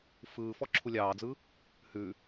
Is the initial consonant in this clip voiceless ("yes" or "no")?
yes